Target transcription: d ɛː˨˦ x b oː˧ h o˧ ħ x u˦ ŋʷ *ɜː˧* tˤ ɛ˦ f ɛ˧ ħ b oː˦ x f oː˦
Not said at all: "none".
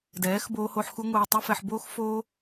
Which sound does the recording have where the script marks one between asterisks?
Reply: ɛː˧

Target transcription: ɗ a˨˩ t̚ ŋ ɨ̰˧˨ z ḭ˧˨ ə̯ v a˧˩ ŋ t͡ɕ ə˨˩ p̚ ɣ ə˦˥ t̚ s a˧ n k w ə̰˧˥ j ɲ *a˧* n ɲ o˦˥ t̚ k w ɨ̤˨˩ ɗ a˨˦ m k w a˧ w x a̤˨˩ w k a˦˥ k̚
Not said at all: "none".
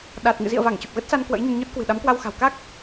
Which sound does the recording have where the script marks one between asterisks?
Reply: ə˧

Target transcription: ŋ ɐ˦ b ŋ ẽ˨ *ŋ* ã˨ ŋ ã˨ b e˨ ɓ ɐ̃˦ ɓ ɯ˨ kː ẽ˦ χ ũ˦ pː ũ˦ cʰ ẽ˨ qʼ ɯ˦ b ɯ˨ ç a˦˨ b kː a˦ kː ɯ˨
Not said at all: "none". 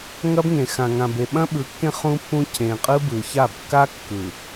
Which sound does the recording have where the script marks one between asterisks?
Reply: x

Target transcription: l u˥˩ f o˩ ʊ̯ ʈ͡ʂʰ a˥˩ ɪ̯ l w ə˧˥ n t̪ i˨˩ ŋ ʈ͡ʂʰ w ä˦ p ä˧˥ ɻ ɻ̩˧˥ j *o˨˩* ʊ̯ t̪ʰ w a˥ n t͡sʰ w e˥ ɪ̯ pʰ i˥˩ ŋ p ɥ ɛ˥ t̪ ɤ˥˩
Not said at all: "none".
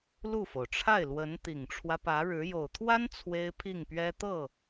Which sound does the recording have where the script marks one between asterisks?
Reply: o˨˩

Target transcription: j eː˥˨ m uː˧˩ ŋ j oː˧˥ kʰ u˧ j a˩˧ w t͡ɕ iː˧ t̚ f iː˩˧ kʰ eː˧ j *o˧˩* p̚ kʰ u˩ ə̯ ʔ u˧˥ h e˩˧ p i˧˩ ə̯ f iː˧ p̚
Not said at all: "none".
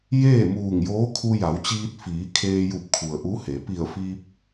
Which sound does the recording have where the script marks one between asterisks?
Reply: u˧˩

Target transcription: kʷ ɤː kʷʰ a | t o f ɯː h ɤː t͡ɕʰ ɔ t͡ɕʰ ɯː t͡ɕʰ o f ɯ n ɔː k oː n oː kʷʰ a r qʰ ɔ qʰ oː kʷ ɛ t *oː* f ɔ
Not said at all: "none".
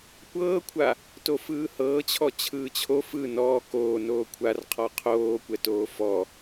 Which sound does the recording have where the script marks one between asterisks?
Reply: oː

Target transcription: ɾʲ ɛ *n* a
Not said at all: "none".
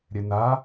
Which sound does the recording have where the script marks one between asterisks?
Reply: n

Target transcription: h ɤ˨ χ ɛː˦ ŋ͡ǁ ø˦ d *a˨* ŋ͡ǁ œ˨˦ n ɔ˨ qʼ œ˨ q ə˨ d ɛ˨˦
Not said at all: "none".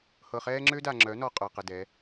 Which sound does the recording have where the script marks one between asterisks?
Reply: a˨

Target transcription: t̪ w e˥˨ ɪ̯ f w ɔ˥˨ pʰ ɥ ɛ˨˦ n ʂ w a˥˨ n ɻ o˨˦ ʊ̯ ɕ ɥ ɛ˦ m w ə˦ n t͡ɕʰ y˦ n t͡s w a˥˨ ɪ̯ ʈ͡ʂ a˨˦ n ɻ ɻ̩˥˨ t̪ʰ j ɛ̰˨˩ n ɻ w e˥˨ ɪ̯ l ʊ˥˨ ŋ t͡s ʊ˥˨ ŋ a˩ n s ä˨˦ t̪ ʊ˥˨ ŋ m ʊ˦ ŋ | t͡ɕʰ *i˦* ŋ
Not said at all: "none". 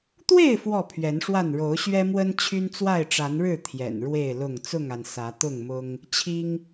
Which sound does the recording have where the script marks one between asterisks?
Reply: i˦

